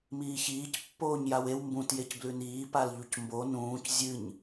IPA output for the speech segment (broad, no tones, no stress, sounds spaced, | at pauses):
m iː ç iː c pː oː ɲ j a w e w m b ũ t j e c b l ʉ n iː p a l ʎ u c m b o n ũː c zʲ ɨ ɲ